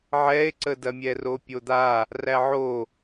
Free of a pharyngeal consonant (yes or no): no